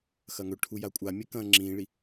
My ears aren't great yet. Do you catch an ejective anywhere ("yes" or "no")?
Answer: yes